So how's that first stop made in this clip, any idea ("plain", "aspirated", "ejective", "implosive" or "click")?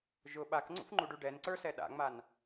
implosive